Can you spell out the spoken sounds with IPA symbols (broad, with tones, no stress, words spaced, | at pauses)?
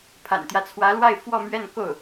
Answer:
pʰa̰˨˩nt̪jä˦t͡sʰwä˧˥lwa˥˧ɪ̯ fwɔ˥˧mɥɛ˥˧nko˥˩ʊ̯